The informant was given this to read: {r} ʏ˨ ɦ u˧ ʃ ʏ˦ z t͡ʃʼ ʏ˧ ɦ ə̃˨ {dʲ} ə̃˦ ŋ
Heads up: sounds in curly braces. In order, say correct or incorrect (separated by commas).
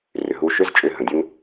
correct, correct